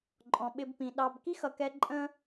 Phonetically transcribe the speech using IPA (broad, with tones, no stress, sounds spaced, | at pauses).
ǃʼ ɔ̃˨ ɓ ɪ˧ b p ĩ˨ ɗ ɑ˨ b k i˦ x ʌ˨ k ɛ˧ ǃʼ ə̃˧